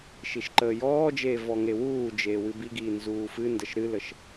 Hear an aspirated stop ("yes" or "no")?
no